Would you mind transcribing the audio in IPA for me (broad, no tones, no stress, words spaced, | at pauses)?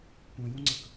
kʷœ̃jũŋ͡ǀək